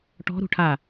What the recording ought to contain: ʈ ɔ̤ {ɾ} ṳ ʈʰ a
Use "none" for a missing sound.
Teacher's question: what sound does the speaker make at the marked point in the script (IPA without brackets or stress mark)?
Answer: ɾ